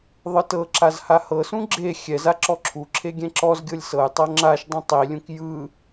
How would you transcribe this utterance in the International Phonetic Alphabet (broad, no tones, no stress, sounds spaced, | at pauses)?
ðˤ ɯ t ɤ ǁ a z h a h ɤ s ũ ɡ͡ǁ e xʲ ɛ z a ǁ ɔ ǁʰ u ǁʰ e ɡʲ ɛ̃ ǁ ɔ z ɡʲ ɤ lʲ s ɤ j tˤ ɤ ŋ͡ǁ a ʃ dˤ ɛ̃ tˤ i lʲ ũ k j ɯ